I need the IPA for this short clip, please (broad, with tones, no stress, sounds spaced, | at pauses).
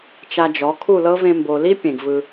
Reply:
t͡ʃ a˧ d͡ʒ ɔ˨˦ kʰ u˦˨ l ɤ˦ v ẽ˧ m b o˨ l i˦ pʲ ẽ˨ ɡ v ɯ˧